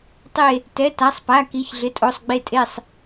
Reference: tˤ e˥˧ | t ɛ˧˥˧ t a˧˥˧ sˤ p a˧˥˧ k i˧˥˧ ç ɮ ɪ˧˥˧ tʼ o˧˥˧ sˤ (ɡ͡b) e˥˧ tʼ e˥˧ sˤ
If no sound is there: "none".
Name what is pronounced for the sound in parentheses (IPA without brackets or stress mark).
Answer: ɡ͡b